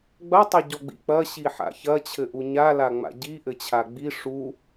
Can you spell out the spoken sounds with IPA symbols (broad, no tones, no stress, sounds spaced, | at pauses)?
ɡ͡b ɐ tˤ ɐ ɟ ɔ ɡ͡b ḭ k͡p ɐ ɕ i ħ a̰ ç ɐ t͡ɕʰ ɘ ʔ u ɲ a l a ŋ͡m a̰ ɟ i ʔ ɘ t͡ɕʰ a ɡ͡b i ʂ u